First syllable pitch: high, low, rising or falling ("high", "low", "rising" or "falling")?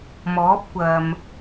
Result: rising